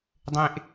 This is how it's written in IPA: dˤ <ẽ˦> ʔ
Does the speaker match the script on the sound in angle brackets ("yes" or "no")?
yes